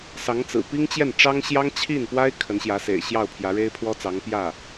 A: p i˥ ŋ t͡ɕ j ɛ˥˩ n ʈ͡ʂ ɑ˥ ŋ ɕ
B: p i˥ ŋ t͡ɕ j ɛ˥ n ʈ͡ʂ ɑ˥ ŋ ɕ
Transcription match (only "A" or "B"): A